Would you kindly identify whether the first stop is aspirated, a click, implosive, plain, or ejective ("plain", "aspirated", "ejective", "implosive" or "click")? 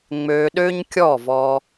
implosive